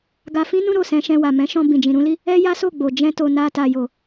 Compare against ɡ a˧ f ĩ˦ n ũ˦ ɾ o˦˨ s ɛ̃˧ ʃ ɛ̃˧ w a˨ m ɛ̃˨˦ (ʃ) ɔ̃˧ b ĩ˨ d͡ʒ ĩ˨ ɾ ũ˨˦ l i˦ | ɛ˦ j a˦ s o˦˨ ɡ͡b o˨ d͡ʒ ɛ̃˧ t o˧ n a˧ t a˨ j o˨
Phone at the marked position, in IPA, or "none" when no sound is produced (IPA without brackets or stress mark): ʃ